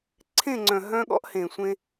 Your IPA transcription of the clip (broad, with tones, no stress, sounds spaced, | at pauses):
ǀʰ ẽ˦˨ ŋ͡ǀ œ̃˨ ɦ œ̃˦ ɠ ɔ̰˦ ʔ h ẽ˨ sʷ ẽ˦